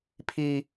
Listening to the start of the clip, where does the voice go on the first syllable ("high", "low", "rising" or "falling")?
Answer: high